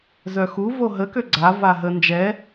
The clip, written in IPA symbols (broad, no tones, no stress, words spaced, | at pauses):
zœxu voɦə køɡ͡ǀa vaɦə nd͡ʒɛ